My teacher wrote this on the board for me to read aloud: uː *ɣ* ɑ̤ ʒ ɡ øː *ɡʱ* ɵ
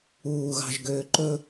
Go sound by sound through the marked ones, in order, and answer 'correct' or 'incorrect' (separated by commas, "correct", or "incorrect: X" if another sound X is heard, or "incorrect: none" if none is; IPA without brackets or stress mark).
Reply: correct, incorrect: ǃ